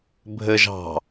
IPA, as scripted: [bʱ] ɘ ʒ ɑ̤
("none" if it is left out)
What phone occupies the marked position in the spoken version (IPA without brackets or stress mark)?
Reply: bʱ